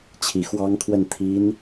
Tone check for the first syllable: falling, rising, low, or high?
rising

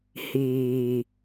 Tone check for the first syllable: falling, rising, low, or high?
low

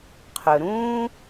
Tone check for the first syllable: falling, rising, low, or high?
low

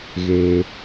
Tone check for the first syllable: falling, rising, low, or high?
low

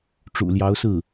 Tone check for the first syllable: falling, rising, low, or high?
low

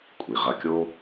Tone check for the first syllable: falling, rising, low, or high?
low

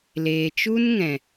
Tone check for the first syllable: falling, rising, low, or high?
low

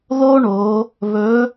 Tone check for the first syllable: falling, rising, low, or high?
high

